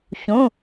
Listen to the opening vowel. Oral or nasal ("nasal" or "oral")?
nasal